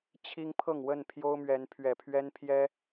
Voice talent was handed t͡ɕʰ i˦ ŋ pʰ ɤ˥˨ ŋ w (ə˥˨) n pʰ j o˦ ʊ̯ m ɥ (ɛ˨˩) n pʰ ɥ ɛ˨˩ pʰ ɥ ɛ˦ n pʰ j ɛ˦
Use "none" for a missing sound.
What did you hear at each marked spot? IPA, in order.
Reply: ə˥˨, ɛ˨˦

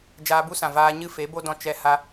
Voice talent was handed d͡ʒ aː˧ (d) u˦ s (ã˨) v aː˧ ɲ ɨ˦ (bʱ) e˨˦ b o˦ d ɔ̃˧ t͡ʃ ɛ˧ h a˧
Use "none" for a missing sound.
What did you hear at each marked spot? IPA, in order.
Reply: b, ã˨, f

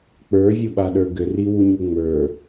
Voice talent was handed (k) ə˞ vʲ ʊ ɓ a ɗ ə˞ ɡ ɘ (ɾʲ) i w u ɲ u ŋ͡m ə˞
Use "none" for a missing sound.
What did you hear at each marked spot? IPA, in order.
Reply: k͡p, r

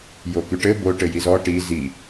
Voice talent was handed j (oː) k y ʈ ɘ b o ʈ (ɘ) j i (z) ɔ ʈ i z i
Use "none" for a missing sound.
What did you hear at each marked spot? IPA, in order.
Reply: o, ɘ, z

